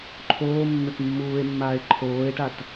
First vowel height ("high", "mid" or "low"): mid